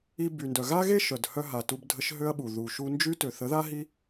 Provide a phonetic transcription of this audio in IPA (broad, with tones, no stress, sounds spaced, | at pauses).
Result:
i˧ b y˨ n d œ˨ ɣ a˦ ɣ e˦ ʃ œ˨ d h œ˧ ɦ a˨ t u˧ b dʱ ə˧ ʃ ɦ ø˦ ɐ̯ ɓ u˨ ð u˨ ʃ u˧ n d͡ʒ y˦ t ø˨ θ ə˨˦ ð a˦ ɦ i˦